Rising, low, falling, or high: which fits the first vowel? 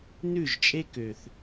falling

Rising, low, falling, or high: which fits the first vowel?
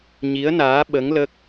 rising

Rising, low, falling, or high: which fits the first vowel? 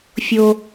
high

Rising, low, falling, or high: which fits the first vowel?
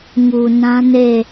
low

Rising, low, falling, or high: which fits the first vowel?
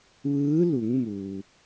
rising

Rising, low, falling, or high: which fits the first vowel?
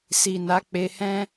low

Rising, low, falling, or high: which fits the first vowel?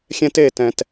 high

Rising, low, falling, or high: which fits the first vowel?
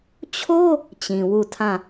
high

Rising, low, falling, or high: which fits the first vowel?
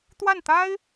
falling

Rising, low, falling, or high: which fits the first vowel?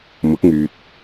rising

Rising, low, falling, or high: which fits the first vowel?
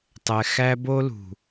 low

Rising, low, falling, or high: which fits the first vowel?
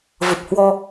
low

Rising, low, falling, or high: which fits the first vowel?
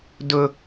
low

